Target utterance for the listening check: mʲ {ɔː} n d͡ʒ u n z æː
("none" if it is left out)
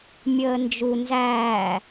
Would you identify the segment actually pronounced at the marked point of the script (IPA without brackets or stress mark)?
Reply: əː